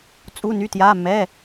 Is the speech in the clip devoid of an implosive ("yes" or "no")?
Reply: yes